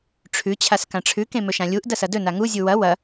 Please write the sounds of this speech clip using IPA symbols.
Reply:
ʈ͡ʂʰ ʉ t͡ɕʰ a s k ã ʈ͡ʂʰ ʉ k ẽ m ɵ ʃ ã lʲ u ʔ d ɐ s ɐ d ɵ n a ŋ u zʲ u w ɐ w ɐ

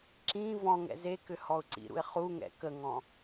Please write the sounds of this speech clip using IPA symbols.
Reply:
ǁ ĩ v ɔ̃ ŋ ɛ̰ z e k ʏ h ɔ ʊ̯ ǀ ḭ ɾ ṵ ɪ̯ χ u ŋ ɛ̰ k ə ŋ ɔ̃

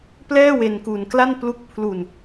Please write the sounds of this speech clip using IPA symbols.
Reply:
p l ɛː˥˩ w e˧ n k u˧ n k l a˥˩ n p l u˦˥ k̚ pʰ l u˧ n

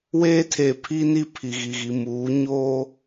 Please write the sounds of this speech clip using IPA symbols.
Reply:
w eː˦ tʰ e˨ pʰ i˦ n i˦ pʰ i˨ ɣ i˨ ɣ i˨ m uː˨˦ ɲ oː˦

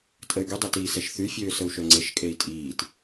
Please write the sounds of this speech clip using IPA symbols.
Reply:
tʼ ə y̯ ɡ y dˤ e t iː s ɛ ʃ θ y fʲ øː s ə u̯ ʃ œ ŋ͡ǀ e ʃ kʼ e i̯ tʼ iː t

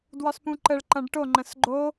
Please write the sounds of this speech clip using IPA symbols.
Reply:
d w ɒ s p ũ ǃ ə ɭ ǃ ɐ̃ ɖ ʈ o ŋ͡ǃ ə̃ s ɡ͡ǃ o

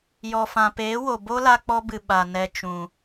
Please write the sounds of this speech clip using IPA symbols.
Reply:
j ɔ˨ f ã˨ p eː˨˦ w o˨ b o˦ l a˧ k͡p ɔ˧ b ɨ˨ ɓ a˨ n ɛ˨ t͡ʃ ũ˨

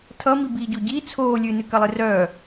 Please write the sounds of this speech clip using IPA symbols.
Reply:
tʰ ʌ m i b iː ɟ o ɟ i t͡sʰ oː lʲ ɨ n ɨ k ɐ lˠ ɨ r œː

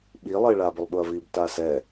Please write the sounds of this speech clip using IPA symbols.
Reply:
ɓ i lˠ ɪː ɭ a b ʊ lˠ ɓ ʊ ɐ̯ v i b t a s ɛ

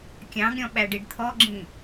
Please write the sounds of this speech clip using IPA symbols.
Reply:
kʲ ɑ̃ ɡ ɾʲ ɔ̃ ɓ æ ɖ i ɖ t̪ʰ ɔ ɡ͡ǁ ĩ

